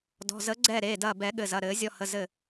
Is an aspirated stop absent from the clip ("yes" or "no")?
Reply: yes